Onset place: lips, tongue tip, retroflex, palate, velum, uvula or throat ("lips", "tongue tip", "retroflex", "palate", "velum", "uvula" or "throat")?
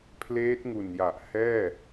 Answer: lips